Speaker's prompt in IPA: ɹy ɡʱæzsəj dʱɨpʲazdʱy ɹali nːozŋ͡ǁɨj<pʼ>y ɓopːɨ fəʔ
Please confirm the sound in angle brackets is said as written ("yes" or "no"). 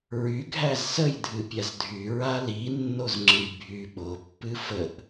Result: no